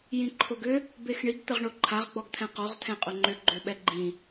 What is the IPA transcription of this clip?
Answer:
jĩǃʰoɡʏ | bexɳiɡ t̪əʁɳoǃʰaʁ ɡ͡bɔɡt̪ʰɛ̃qɔʁ t̪ʰɛ̃qʼʊŋ͡ǃʏ ɡ͡ǃøɓɛɡ͡ǃĩ

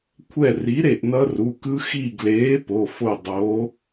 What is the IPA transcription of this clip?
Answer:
kʷʰɛ˦˨ri˨˥ ɾe˦˨ʔnʌ˦˥ru˩˧˩kɯ˦˥ xi˦˨ɡleː˨˥ po˩˧˩fo˦˨ dˤo˨˥

